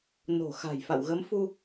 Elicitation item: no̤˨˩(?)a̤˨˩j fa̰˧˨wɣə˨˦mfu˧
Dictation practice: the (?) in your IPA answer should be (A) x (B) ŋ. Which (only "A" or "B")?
A